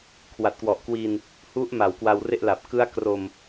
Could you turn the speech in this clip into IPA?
kʰ w a˨˩ t̚ k w ɔ˨˩ ʔ k w i˧ n | h u˦˥ ʔ m a˩˦ w k w a˧ w r e˥˩ ʔ l a˨˩ p̚ k ɯ˦˥ a̯ k r o˨˩ m

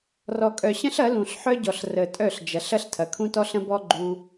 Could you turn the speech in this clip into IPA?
r ɔ˨ kʼ œ˨ ɕ ə̃˦ ɬ ɐ˨˦ l ũ˨ ɬ ħ œ˦ ɟ ɔ˨ ɬ r ə˨ tʼ œ˦˨ ɬ d͡ʒ ɐ˨˦ ɬ ɐ˦ ɬ tʰ ɐ˨ kʰ ũ˦ t ɔ˦ ɬ ə̃˦ b ɔ˦ ɡ͡ǃ u˧

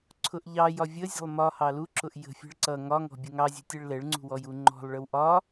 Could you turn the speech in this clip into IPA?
ǀʰ ʊ ʔ ʎ ɑ j ɒ vʲ ə zʲ ə̤ lˠ m ɒ h ɑ l u ǁ ʊ ʔ j ə̤ fʲ ɛ̤ ɭ ǀ ʌ ŋ ɒ ŋ ɔ̤ bʲ ʊ ŋ ɑ zʲ ɛ̤ tʲ ɛ ɭ l ɛ ɭ ŋ͡ǀ ṳ w ɔ j u ŋ͡ǃ ɔ̤ lˠ ɭ ə w ʔ ɒ

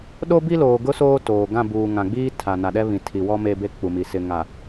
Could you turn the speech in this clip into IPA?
ɗ o˦ b i˦ l oː˨ ɡ ʊ˦ s oː˦ t oː˨ ɡ ã˦˨ b uː˨ ŋ ã˨ ɡ͡b iː˦ tʰ a˨ n a˨ ɗ ɛ˦ β ĩ˨ tʰ i˨ w ɔ˦ m e˦ b e˦ k͡p u˨ m i˨ s ɪ˨ ŋ a˨

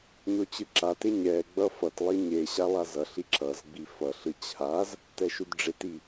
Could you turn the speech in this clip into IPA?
ɲ o t͡ɕ ɯ ǁ a t e ɲ ɛ ɡ͡b ʌ f ʌ t lˠ i ɲ e ɕ a lˠ a z ʌ ɬ i ǁ ʌ z ɡ͡b i f ʌ ɬ ɯ t͡ɕʰ a z | t ɛ ʃ u d ɖ͡ʐ e t i

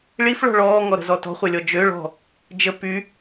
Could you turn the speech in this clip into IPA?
ɭ i f ɭ ɔ̤ ɭ ɔː ŋ ɔ ɾ ə̤ z ɔ t ɔ̤ χʷ œ lʲ ɔ d͡ʒ ø ɭ ɔ̤ | d͡ʒ ə p y

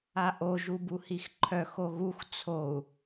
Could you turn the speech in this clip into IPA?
a ʔ o ʒ u b u h i x ǃʰ œ x o ɣ u x t͡sʰ o u̯

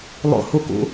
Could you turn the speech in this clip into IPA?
lˠ o̰ h u k ṵ

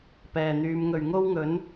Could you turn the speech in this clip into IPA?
p ɛː˨˩ n̪ yː˨˧ m ŋ ɵ˨˩ ɥ ŋ o˥ w ŋ ɵ˨˥ n

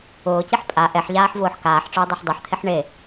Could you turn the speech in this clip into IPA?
ʊː c i ħ pʼ a ʔ ɛ ħ ʎ aː ħ v ʊː ħ k aː ħ ʈ͡ʂ ʊː dˤ u ħ dˤ u ħ t̪ʰ ɪ ħ ɳ e

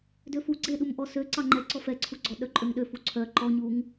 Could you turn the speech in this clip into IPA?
d ø f u ɡ͡ǀ e ɗ u m ʔ ɔ s ø ǀ ɑ ŋ͡ǃ ɛ ǀ ɔ f ɛ ǀʰ u ɡ͡ǀ ɔ ɗ œ ǃʼ ø ŋ ɗ ø f u ǀʰ œ ǃ ɔ ɲ u ŋ

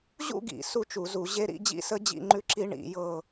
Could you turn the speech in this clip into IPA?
ʑ ṵ˥˧ ɡ ḭ˧˩˧ s u˦˥ t͡ʃ u˧˩˧ z u˧˩˧ ʑ e˦˥ ɾ ḭ˥˧ d͡ʑ ḭ˦˥ s ə˦˥ d͡ʑ ḭ˥˧ ŋ͡ǃ ʉ˦˥ ǁ i˦˥ ɳ ḭ˧˩˧ j ɤ˥˧

